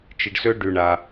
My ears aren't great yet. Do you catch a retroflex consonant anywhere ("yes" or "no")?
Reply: yes